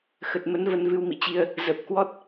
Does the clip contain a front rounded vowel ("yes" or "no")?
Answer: no